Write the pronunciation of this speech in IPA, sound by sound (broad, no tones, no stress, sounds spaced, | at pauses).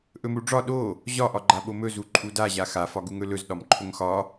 ʔ ɵ m u ɖ͡ʐ ɒ ɗ o | ʑ ɒ ʔ ɒ ɡ͡ǃ a ɓ o m ɵ z u ǃʼ u d a ʑ a x a f ɒ ɡ u ŋ ɵ l ɵ z ɗ ɒ m ǃʰ ɵ ŋ x ɒ